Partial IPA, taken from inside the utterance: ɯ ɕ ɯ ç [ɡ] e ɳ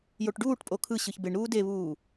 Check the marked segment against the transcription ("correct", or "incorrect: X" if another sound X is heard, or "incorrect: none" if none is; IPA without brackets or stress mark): incorrect: b